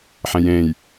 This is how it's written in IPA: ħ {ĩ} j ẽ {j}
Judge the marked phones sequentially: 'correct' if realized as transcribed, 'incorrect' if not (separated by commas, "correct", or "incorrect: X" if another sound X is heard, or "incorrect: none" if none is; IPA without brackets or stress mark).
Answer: incorrect: ẽ, correct